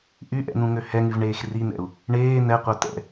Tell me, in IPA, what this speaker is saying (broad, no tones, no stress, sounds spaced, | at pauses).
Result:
ʔ y ʔ ɛ̰ n ũ ŋ ø h ɛ ŋ y v ɳ eː x r i n̪ ɛ̰ u̯ | ɳ eː n̪ ɛ qʷ œ t ɛ̰